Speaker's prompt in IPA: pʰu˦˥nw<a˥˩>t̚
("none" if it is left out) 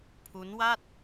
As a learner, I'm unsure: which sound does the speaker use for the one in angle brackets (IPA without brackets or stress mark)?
a˥˩